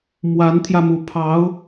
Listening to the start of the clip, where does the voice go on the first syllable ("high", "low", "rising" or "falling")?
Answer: rising